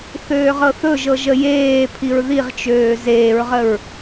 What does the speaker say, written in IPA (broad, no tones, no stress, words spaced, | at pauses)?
θøːʁɤθɵʒɤ ʒəjeːpʰiɹ ðiʁt͡ʃøː zeːɹʁəɹ